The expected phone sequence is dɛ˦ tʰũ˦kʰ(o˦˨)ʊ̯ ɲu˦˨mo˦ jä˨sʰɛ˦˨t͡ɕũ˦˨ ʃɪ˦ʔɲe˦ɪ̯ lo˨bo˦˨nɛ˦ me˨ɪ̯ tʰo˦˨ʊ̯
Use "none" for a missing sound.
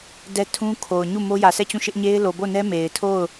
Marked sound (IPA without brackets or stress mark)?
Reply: o˨